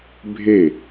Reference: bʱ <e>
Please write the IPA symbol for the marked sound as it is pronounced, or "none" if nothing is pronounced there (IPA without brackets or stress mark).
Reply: e